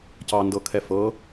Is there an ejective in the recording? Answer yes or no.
no